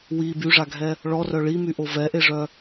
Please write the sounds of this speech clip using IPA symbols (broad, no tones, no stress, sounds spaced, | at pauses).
w i b y ʐ a ɡʱ ɛ | ɭ ɔ r œ ɭ i m y ʔ o v ɛ ʔ e ʐ œ